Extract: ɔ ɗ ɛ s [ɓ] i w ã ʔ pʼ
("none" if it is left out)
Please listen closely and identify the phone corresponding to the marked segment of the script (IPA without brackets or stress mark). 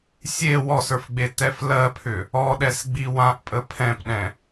ɡ͡b